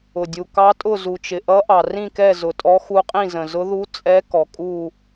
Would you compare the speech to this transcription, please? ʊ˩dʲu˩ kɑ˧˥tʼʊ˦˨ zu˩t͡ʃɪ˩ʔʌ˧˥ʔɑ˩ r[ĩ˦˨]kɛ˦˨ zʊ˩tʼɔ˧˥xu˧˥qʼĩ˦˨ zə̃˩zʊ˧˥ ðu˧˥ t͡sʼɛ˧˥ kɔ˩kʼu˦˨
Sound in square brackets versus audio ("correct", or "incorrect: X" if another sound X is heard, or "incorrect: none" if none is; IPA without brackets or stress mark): correct